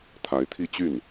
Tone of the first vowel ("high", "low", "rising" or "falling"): rising